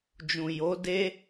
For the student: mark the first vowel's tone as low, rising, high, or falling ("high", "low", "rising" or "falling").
low